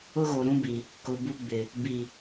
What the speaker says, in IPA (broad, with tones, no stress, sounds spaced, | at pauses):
ʊ˦ ɣ o˨ ɾ ũ˦ b i˨ | k ʊ˨ b u˦ ɡ͡b ɪ˨ | b i˨